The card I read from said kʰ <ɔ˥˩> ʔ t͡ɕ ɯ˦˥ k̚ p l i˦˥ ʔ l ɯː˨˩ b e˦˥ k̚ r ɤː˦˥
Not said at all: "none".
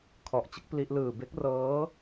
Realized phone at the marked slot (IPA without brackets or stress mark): ɔ˨˩